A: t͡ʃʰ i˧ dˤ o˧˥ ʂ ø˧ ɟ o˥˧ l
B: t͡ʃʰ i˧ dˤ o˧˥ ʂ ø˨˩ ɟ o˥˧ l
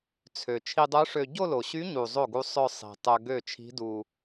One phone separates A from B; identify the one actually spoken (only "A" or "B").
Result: A